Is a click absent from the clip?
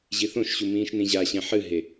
yes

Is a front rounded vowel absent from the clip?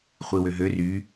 no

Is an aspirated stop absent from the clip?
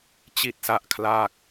no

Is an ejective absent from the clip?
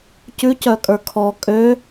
no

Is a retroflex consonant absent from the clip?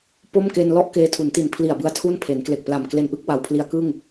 yes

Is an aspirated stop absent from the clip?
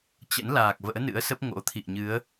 no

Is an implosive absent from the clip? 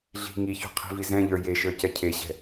yes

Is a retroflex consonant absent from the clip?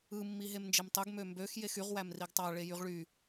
no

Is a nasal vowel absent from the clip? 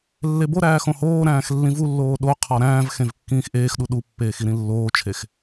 no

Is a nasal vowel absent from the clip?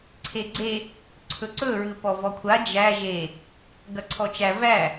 yes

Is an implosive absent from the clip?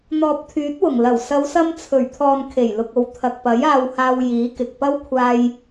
yes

